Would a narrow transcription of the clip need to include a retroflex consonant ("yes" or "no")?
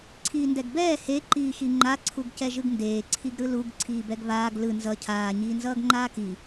no